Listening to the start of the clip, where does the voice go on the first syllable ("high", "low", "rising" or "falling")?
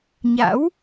rising